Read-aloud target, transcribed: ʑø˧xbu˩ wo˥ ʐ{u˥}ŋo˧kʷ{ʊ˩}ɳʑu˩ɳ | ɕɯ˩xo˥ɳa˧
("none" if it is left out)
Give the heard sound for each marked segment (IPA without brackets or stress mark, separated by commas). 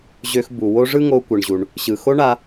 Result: ɯ˥, ɯ˩